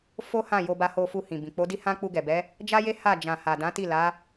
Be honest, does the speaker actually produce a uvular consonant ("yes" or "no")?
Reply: no